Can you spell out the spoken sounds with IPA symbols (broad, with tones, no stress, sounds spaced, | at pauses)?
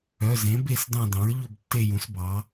œ˩˧˩ z ẽ˩˥ b e˦˨ s d ɑ̃˦˨ d ɑ̃˩˥ ɹ ʎ ɵ˦˨ b tː e˦˨ j ũ˩˥ s b ɑ˩˥